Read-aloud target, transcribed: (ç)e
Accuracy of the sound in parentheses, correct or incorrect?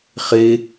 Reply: incorrect: χ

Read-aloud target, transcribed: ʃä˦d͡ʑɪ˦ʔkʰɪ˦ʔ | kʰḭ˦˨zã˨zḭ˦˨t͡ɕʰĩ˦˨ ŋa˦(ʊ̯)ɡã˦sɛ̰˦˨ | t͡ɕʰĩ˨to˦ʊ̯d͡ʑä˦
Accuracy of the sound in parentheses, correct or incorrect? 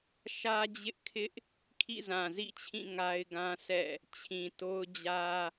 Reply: incorrect: ɪ̯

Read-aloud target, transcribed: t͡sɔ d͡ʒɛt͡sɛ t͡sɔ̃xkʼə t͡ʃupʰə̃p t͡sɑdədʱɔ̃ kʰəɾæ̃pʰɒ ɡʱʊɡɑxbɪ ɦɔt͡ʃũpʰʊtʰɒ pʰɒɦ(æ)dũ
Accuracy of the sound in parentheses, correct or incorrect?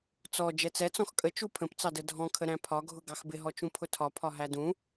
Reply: correct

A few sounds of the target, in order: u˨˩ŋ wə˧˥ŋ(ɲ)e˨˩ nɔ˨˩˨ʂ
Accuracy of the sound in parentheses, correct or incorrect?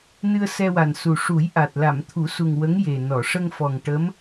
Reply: incorrect: j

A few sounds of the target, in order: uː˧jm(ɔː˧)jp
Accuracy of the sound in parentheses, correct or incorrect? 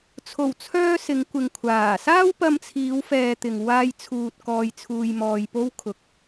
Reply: correct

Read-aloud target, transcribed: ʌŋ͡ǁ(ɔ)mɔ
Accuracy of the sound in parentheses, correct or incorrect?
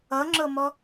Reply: incorrect: ɤ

